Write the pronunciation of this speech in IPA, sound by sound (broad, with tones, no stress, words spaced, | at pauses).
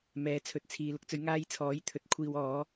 mɛː˨˥ t͡sʰɵ˨t̚t͡sʰiː˨ lʊ˧k̚t͡sɵ˨˧ɥ ŋaː˧jt͡sʰɔː˨˥j t̪ʰɵ˨t̚ kʷʰiː˨w ɔː˨˧